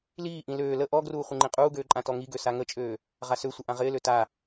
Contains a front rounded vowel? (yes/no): yes